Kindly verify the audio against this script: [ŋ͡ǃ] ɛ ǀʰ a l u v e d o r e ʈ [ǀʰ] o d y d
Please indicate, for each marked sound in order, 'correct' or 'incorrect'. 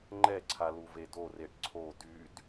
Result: correct, correct

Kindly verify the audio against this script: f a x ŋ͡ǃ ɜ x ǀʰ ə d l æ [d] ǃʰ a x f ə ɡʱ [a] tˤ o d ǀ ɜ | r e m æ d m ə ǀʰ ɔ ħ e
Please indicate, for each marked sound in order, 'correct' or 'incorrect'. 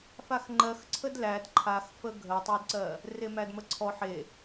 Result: correct, incorrect

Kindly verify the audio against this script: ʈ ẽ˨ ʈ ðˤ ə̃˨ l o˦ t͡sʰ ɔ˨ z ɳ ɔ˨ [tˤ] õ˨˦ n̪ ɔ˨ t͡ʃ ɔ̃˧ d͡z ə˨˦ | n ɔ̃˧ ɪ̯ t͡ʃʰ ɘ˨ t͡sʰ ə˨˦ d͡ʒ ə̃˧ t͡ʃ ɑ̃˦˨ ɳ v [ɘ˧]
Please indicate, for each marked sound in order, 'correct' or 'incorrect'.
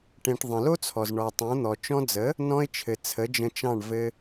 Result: correct, correct

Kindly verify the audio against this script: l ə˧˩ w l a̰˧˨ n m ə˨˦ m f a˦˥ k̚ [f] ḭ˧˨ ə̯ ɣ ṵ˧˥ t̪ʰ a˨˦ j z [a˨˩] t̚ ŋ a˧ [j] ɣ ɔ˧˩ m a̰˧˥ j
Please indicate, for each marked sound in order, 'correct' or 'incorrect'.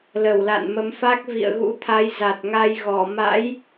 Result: incorrect, correct, correct

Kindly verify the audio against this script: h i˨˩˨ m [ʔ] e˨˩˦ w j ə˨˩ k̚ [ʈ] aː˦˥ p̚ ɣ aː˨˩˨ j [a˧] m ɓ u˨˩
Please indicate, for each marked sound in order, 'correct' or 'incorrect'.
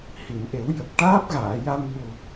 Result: correct, correct, correct

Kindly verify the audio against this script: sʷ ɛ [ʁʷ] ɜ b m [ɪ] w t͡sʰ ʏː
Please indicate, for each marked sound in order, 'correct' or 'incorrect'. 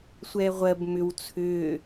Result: correct, incorrect

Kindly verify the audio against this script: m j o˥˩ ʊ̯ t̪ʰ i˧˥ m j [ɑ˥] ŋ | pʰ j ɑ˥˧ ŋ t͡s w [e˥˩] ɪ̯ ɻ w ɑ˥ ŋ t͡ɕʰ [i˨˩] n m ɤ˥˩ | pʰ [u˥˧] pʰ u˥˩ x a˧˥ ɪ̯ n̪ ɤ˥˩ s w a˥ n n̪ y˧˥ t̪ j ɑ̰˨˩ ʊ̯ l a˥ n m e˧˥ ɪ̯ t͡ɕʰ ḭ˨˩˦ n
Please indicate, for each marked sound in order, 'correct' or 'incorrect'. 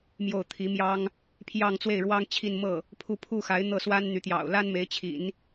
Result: correct, correct, incorrect, correct

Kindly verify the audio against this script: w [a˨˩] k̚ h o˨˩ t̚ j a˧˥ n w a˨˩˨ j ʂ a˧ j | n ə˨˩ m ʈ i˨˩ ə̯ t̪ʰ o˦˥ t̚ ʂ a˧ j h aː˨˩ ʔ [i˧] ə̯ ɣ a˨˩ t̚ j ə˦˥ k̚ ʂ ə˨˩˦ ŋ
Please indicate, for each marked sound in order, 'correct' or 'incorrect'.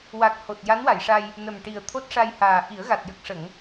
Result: correct, incorrect

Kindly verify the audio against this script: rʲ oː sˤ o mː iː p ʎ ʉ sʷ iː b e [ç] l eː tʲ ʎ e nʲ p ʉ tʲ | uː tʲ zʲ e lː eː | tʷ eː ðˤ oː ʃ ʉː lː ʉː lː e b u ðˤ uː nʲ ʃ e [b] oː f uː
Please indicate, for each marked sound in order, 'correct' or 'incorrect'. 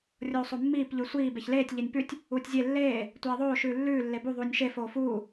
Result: correct, incorrect

